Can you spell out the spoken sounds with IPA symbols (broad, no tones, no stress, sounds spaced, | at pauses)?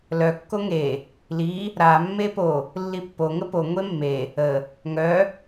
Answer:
l œ kː o ŋ e | l i | ɾ a mː e p o | lː i pː o ŋ ə p o ŋʷ e mː e | ə | ŋ œ